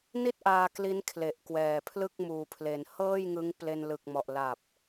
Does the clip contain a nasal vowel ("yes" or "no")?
no